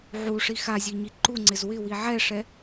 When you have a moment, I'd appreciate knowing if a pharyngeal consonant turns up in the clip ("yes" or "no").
yes